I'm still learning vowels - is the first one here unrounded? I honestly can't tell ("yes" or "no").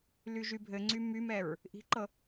no